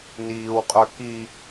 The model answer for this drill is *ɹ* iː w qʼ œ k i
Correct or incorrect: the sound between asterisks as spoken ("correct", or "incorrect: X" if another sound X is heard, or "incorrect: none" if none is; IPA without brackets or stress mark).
incorrect: n